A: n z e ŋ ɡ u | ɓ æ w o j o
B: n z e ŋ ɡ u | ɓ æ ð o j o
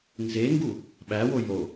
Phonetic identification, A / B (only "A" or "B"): A